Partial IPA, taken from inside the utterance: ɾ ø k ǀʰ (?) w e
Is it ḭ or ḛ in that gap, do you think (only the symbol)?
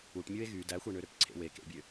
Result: ḛ